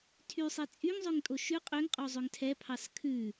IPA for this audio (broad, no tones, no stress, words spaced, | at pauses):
tʰysˤi t͡sʼyŋzˤøŋtʼo ʃʉ qʼøŋqʼozˤøŋ tʰɛpʰɑs kʰʉ